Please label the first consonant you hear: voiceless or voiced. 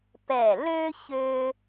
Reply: voiceless